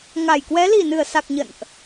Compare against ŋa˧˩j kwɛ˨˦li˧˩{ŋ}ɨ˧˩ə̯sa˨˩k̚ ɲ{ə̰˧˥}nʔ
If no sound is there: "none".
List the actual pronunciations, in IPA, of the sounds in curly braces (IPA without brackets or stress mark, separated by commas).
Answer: n, ə̰˧˨